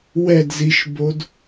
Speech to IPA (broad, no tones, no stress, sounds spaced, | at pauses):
w ɛ d z i ʃ b o d